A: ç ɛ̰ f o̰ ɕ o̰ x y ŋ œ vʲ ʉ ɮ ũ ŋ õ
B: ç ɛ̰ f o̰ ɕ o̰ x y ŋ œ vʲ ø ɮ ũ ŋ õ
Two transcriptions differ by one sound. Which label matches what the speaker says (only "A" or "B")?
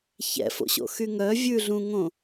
A